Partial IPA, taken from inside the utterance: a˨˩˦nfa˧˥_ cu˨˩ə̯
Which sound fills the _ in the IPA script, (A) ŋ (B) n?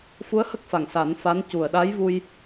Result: B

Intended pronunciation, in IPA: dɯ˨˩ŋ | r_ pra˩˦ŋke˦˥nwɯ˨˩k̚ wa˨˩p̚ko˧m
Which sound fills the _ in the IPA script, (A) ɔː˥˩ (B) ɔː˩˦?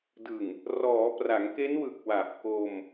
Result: B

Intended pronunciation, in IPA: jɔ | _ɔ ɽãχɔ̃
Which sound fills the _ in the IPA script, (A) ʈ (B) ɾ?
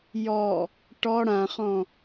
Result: A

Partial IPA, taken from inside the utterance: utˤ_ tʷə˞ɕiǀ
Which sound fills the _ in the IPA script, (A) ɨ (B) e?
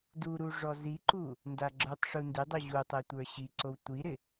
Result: A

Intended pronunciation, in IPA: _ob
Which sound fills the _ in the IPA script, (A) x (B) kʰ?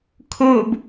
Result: B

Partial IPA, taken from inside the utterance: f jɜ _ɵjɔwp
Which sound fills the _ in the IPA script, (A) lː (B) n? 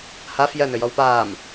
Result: B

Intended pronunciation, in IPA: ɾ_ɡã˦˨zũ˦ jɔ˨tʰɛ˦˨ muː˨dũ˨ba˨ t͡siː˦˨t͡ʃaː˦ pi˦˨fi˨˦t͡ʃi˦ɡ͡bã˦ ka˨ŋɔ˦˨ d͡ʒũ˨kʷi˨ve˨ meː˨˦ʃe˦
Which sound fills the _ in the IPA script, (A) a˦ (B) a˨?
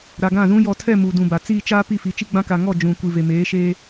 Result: B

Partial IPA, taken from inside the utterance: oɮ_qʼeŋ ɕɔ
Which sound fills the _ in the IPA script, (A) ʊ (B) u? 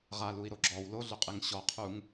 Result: A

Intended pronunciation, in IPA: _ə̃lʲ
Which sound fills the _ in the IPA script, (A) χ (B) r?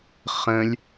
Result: A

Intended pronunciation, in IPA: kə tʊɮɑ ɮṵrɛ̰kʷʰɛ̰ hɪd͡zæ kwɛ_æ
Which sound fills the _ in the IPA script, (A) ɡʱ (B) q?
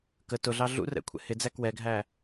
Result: A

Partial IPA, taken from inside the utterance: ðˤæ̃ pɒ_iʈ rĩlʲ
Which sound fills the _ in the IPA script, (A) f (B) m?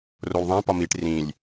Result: B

